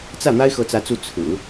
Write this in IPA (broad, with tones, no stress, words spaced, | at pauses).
t͡sä˥˩ n̪a˥ɪ̯xɤ˧˥t͡sä˧˥t͡su˧˥ t͡sʰɹ̩˨˩˦